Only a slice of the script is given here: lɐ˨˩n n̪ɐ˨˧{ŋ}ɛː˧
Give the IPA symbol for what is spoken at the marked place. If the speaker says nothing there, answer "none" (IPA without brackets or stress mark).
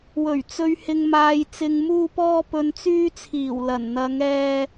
ŋ